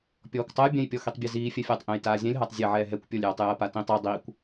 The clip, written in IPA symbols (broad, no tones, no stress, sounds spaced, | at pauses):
pʲ ɔː kʷ tˤ ɐ j bʲ ɛ̃ j pʲ ɔ x i tˤ bʲ ɛ z iː fʲ ɛ fʲ ɐː tˤ ʔ ẽ j t aː zʲ ɛ̃ lʲ ɦ a tˤ zʲ e ʕ ɛː ɦ ɛ kʷ pʲ ɔ lʲ j ɔ tˤ j ɐː p a t ĩ tˤ ɐ dˤ iː kʷ